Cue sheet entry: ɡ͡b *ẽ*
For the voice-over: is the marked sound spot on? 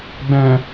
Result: no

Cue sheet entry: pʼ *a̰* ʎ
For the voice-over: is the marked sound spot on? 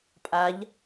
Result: no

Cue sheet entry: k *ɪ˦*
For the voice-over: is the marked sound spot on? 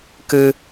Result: no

